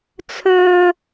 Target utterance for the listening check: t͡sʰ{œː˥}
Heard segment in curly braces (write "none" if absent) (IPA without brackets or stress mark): œː˥